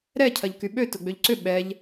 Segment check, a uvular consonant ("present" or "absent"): absent